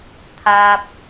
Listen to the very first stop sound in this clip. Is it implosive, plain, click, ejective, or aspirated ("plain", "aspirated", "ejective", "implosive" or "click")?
aspirated